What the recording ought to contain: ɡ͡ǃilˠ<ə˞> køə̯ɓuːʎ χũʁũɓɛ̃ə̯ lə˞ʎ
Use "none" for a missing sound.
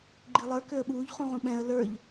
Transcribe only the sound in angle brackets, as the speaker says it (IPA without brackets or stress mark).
ə˞